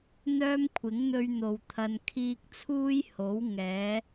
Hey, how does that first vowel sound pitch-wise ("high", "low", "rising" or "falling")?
high